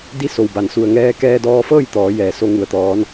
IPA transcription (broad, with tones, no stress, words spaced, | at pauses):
di˧˥so˩w ba˩nsu˧˩ə̯ ŋɛː˧kɛː˧dɔː˧fɤː˥˨j t̪ɔː˩˧ jɛː˩so˧ ŋu˩ə̯t̪ɔː˩˧n